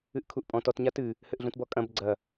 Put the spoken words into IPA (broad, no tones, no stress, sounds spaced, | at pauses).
ɨ ʔ kʰ u ʔ pʼ ɔ̃ t ɔ t ɲ a t ɨ | h ɘ ʔ ɮ ũ t b ɔ kʼ ɐ̃ b ɡ͡ǀ ɐ